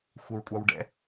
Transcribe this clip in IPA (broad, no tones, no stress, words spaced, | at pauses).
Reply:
xʷɛɹkʷʼɑwɖɛ̰